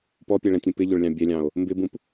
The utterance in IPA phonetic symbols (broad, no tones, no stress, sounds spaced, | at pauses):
p ɔ pʲ ɛ ɭ ɛ̃ tʲ ũ p ɪ ʎ ʊ ɭ lʲ ɑ̃ bʲ ɛ lʲ ɑ̃ o̯ | m b ɪ b ũ p